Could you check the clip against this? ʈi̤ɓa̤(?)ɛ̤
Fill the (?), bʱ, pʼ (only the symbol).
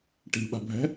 bʱ